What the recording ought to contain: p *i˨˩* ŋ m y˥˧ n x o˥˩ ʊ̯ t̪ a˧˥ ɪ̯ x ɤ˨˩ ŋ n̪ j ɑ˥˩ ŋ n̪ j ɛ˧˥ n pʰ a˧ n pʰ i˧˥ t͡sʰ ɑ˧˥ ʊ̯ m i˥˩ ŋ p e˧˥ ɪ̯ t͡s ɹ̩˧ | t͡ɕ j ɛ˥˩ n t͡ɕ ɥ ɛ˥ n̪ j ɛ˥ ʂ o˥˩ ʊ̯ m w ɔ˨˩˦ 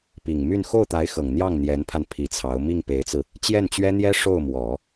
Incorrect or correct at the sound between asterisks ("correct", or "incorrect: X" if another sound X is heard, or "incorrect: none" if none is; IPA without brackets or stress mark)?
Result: correct